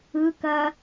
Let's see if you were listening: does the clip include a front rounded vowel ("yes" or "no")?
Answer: no